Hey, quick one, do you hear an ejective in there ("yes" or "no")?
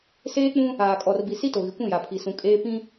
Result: yes